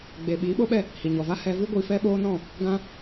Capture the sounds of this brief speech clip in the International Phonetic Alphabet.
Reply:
ɡ͡b e˨ ɓ iː˨˦ ɓ o˦ ɓ ɛ˦˨ | h i˨ ɲ ɔ˨ v a˦ h ɛ˧ v ɨ˦ ɡʷ i˧ f ɛ˦ ɓ oː˦ n ɔ̃˦˨ | ɡ ã˧

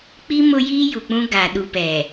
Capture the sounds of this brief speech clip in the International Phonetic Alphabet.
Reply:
k͡p i˦ m ʊ˦ j iː˦ j u˨ k͡p ũ˦ ɡ a˨ ɗ u˨ p ɛ˨

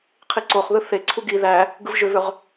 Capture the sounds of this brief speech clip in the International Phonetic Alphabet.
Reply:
qʰ i ǀ o χ ð ɯ θ e ǀʰ u ɡ i ð æ | ɡ ɯ v ʒ ø v ø ʁ

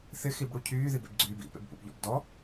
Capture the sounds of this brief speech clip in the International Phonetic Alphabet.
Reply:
θ ɪ x i b ɽ u cʰ yː ð i b ḛ b ɡ͡ǀ yː b ḭ p ḛ b p ṵ b ʎ ɔ̰ b d ɔ

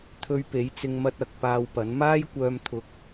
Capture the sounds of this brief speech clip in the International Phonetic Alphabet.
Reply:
t̪ʰ ɵ˧ ɥ p e˨˥ j t͡s ɪ˧ ŋ m ɐ˧ t̚ ɐ˨ k̚ p aː˧ w p ɐ˨˥ n m aː˥ j kʷ œː˧ m t̪ʰ ʊ˧ k̚

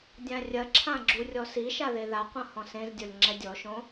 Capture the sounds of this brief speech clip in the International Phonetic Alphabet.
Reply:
dʲ ã rʲ ɐ ǁʰ ã ɡ͡ǁ u rʲ ɔ s i ʃ a ð e ð a qʷ ɐ̃ h ɔ̃ s ẽ z dʲ ɔ lʲ ŋ͡ǁ ɛ dʲ ɔ ʃ õ

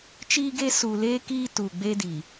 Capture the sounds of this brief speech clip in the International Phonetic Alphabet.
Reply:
t͡ʃ iː˦ ɡ e˦ s u˨ l eː˦ k iː˦ t u˨ ɡ͡b e˦ d iː˨

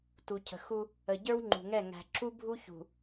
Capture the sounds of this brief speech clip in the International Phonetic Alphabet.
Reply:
t u˨ cʰ ə̤˨ x u˦ | ə˨ ɟ ə˞˦ w ŋ͡ǃ ṳ˨ ŋ ɛ˦˨ ŋ æ̤˨ ǁ u˦ bʱ u˦ ç ṳ˨

